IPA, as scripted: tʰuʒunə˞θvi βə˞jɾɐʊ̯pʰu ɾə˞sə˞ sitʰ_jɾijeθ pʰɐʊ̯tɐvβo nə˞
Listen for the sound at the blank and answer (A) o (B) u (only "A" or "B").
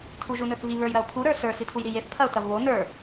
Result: B